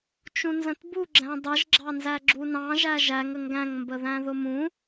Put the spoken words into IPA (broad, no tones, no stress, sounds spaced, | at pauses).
t͡ʃ ũ n z ə̃ t b u ɡ͡ǁ æ̃ dˤ ɪ ʒ ɡ͡ǁ ɑ n z æ ɡ͡ǁ u n ɑ̃ ʒ æ ʒ æ ŋ ə ŋ ɡ æ̃ ŋ m b ə ð æ̃ ð ʊ m ũ